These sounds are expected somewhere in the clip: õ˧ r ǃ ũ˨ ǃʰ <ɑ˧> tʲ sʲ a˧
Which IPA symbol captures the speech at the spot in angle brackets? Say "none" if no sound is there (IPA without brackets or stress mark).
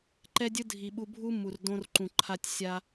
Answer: a˧